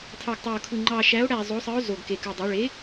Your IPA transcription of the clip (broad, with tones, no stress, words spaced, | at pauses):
tʰɑ˨˩ɡtˤæ˨˩o̯kʰɯ˨˩ ŋ͡ǃɑ˨˩ʃæ˩˥o̯ɽæ˨˩ zˤo˩˥sˤɯ˩˥o̯ zo˨˩ɡke˨˩kɯ˨˩dˤe˩˥ ɭe˩˥